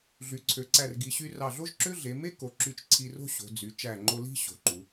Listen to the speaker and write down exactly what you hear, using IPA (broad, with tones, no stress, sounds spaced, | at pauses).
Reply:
ɮ y˩˧ ǀʰ ø˩˧ ǀ æ˧˩ r ɡ i˩˧ ɕ y˧ r ɑ˧˩ ɮ o˥ ʒ ǁ ø˥ ɮ e˩˧ m e˥ k o˩˧ ǁ y˧˩ t͡ʃ ǀʰ i˧ r o̤˥ ɕ o̤˩˧ d͡z y˩˧ t͡ʃ æ˧˩ ŋ͡ǃ o˧ l i̤˥˧ ɕ o̤˩˧ ǃ u˩˧